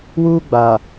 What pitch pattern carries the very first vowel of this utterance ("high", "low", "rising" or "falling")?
high